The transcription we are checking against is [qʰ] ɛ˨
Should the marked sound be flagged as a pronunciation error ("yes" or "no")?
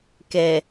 yes